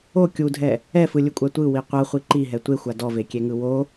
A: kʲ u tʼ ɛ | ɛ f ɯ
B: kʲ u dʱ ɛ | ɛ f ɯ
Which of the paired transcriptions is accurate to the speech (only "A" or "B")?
B